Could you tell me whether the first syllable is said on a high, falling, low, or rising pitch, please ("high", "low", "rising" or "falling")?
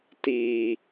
low